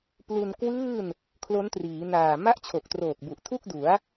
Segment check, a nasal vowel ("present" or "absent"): absent